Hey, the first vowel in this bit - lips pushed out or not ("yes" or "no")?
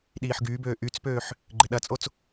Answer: no